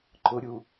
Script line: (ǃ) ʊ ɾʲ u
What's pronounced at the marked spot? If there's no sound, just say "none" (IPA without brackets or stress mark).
ǃ